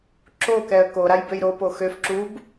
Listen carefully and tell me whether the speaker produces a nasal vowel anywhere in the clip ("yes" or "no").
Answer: no